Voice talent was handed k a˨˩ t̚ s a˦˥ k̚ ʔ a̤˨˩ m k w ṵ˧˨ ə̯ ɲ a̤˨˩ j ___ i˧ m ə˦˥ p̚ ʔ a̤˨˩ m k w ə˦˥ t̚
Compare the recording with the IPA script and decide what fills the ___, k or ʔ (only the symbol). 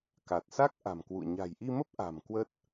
ʔ